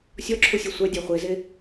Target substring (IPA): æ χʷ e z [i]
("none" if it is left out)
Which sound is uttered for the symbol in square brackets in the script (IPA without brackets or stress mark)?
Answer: e